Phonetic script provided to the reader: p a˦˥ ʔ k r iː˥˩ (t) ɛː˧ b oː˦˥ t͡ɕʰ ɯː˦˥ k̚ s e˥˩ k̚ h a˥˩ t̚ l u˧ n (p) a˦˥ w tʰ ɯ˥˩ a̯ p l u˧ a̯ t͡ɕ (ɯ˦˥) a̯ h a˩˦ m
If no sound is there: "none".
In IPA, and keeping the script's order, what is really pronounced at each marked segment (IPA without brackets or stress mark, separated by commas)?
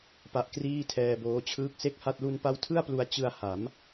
tʰ, p, ɯ˧